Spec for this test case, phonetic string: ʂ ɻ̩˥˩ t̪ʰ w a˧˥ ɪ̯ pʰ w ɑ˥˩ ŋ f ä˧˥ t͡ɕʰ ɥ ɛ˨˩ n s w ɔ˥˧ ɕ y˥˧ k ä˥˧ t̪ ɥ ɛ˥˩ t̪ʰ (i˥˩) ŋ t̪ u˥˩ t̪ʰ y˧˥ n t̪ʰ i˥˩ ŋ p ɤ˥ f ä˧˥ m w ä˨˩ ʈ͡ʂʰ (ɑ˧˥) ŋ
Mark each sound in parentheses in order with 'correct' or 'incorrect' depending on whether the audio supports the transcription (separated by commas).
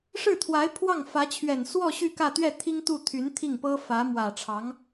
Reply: incorrect, correct